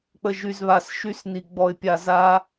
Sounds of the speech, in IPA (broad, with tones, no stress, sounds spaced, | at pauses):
k͡p ə˧ ʒ y˧ z β a˧ s ʃ y˥ s n i˧ ɡ͡b ɔ˧ ɪ̯ pʲ a˧ z a˥